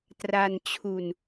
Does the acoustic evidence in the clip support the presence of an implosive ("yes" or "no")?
no